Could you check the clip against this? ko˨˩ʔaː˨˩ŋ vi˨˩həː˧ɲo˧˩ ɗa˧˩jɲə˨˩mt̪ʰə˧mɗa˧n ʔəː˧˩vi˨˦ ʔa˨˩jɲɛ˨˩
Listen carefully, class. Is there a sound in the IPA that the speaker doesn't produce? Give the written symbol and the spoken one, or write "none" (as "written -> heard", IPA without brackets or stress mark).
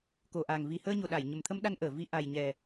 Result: none